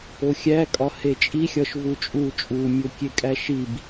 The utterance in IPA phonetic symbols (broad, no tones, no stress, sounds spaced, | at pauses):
o xʲ æ kʼ ɒ h e t͡ʃʼ i xʲ ɒ ʃ v u t͡ʃʼ u t͡ʃʼ u mʲ o kʲ e kʼ æ ʃ i b